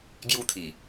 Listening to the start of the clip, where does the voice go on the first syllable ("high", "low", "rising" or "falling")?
high